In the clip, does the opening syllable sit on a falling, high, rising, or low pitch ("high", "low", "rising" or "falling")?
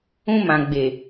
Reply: high